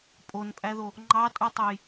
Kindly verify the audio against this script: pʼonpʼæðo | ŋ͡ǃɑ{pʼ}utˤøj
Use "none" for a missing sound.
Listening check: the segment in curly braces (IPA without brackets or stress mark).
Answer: tʼ